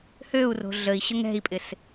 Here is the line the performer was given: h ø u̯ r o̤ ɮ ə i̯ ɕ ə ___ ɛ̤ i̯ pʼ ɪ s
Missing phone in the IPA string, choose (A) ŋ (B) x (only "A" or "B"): A